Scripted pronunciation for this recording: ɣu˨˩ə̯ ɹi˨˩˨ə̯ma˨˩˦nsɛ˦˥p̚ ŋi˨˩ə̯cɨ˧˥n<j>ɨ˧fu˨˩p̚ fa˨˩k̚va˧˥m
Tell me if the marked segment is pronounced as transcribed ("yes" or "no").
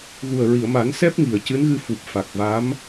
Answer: no